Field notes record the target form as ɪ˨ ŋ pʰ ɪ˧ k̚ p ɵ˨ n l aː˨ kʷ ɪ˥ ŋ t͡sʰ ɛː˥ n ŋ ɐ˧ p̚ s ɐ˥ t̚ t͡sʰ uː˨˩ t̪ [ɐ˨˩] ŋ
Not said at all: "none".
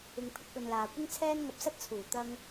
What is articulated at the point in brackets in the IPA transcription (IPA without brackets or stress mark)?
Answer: ɐ˥